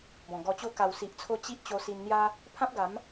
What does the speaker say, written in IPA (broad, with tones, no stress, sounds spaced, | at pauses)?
b ɔ̃˨˩ ɡ ɔ˧ t͡ɕ o˥˧ k a˨˩ w s i˨ ʔ t͡sʰ o˧ t͡ɕ i˦ ʔ t͡ɕ o˧ s i˧ n n̪ j a˦ | pʰ ã˦ p̚ ɡ a˨˦ m